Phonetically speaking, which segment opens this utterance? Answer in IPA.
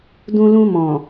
d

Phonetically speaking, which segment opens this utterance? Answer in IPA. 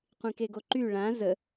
qʷ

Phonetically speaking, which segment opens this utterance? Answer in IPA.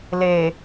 l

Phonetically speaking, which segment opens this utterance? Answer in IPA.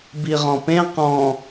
b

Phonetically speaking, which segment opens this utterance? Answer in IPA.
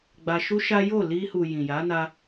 ɡ͡b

